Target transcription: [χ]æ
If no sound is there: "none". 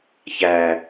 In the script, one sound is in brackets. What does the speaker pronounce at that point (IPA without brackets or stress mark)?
ç